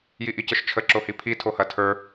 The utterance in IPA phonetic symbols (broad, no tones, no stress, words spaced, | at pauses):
jiʔicəʃt͡ʃʰə ǁohipʰi tʰohɐtʰə˞